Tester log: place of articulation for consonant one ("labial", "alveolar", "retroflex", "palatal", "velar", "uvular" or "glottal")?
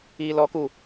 alveolar